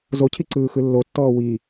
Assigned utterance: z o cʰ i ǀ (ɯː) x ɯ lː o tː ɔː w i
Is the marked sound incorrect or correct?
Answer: correct